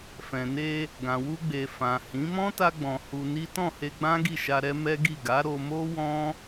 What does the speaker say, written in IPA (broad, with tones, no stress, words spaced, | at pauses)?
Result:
fɛ̃˨ne˧ | ɡã˨wu˧ɡ͡be˨ fã˨hĩ˨˦ mɔ̃˦ta˧ɡ͡bɔ̃˨ hu˧ ni˦ tɔ̃˦˨he˧ɡ͡bã˦ ɡi˦˨ʃa˧ɾɛ˦ mɛ˦ɡi˦˨ ɡa˨˦ ɾo˧ mo˦wɔ̃˦